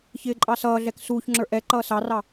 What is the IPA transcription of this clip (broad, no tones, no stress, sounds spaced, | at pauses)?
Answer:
ç ɪː ǃʼ ɑ s ʌː ɮ ɛ k s uː ç ŋ͡ǁ ə˞ ʔ ɛ ǃ ʌː s ɑ r ɑ